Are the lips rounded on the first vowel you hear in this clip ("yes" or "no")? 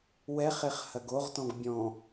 no